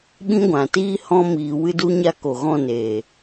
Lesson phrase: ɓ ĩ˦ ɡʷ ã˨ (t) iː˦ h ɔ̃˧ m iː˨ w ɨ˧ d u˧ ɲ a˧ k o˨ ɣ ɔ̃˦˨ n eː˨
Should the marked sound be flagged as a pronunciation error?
no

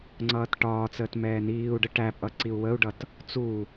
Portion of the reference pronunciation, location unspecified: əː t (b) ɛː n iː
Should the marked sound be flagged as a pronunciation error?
yes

